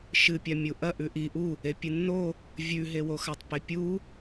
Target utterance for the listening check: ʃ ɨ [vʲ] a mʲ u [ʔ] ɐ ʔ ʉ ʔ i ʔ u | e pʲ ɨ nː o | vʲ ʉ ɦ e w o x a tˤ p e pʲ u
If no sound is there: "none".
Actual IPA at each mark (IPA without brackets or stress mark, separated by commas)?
pʲ, ʔ